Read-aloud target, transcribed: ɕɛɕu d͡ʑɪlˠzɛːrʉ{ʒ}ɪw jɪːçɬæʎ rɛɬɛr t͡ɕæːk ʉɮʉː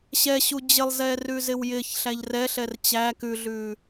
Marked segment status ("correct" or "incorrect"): incorrect